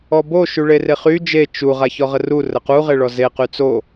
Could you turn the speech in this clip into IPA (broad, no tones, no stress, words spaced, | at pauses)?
ɔbo ʃyɭereχy d͡ʒe t͡ʃu ʁaçɔʁəru rəqu ʁeɭɔze qyt͡so